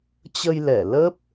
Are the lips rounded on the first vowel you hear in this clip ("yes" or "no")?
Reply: no